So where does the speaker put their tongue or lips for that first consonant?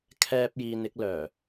velum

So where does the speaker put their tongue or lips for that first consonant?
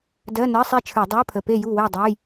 tongue tip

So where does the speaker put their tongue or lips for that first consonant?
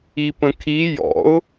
lips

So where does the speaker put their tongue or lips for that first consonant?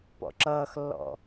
lips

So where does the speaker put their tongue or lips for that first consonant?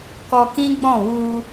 velum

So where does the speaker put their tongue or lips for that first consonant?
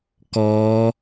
velum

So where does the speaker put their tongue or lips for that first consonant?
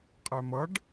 uvula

